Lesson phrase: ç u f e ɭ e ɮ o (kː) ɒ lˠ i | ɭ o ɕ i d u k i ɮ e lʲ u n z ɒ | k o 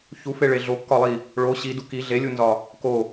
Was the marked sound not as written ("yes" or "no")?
no